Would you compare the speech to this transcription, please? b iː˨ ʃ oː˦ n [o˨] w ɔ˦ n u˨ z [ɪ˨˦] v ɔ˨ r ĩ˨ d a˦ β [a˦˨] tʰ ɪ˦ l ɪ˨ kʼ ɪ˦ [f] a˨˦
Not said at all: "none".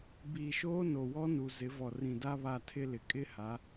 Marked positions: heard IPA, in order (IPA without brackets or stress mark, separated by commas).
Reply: o˨, ɪ˨˦, a˦˨, h